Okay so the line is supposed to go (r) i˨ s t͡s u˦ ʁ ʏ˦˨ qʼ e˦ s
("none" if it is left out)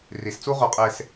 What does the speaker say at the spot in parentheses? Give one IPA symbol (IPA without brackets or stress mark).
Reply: r